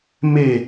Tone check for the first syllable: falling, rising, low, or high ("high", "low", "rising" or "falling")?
falling